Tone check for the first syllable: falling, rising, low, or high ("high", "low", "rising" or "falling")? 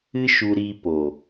high